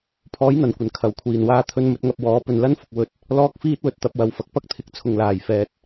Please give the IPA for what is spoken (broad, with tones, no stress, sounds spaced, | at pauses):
pʰ ɔː˨˥ j n̪ ɐ˨˩ n kʷ ɐ˨˩ n kʰ ɐ˨˩ w kʷʰ iː˨˩ n w aː˥ t̪ʰ ɵ˥ n m ɵ˧ t̚ ŋ ɐ˧ p̚ w ɔː˨˥ p ɵ˨ n l ɐ˥ n f ʊ˨ k̚ w ɵ˧ t̚ | l ɔː˥ k̚ f iː˥ t̚ w ɵ˨˥ t̚ t̪ ɐ˧ p̚ w ɐ˧ w f ɐ˨ k̚ p ɐ˥ k̚ t̪ʰ ɪ˨ k̚ t͡sʰ ʊ˨ ŋ l aː˨˩ j f ɛː˨˥ t̚